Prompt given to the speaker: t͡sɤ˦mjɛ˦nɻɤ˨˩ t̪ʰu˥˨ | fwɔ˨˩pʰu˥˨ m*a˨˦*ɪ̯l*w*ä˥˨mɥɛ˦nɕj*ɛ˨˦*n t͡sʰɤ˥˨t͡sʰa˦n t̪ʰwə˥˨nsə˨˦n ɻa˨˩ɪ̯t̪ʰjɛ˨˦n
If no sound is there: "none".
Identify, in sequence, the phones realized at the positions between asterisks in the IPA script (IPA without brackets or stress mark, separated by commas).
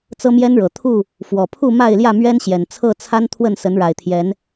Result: a˥˨, j, ɛ˨˩